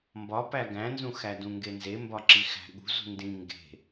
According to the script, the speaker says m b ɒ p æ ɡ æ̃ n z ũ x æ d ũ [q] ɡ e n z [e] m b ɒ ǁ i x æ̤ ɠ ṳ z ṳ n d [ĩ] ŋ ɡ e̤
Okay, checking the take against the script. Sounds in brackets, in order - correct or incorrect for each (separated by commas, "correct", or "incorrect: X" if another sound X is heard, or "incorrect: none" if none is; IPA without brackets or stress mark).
incorrect: ŋ, correct, correct